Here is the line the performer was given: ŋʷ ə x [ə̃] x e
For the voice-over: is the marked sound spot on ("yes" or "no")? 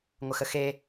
no